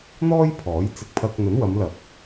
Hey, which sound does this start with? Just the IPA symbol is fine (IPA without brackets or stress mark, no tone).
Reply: n̪